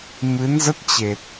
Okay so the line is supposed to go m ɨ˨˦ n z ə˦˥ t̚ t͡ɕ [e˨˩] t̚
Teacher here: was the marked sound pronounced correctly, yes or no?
yes